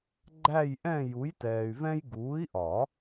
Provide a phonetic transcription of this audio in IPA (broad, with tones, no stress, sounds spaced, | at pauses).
ɡ͡ǃ æ˥˧ j ʔ ɛ̃˥˧ j u˨˥ j t ɛː˨ y̯ v ɛ̃˥ j ɡ uː˨˥ i̯ ʔ ɒ˨˩˦